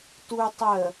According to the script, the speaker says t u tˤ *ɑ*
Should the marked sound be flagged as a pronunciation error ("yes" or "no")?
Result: yes